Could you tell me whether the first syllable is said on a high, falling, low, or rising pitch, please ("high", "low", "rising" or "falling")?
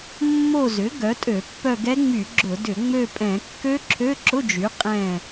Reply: falling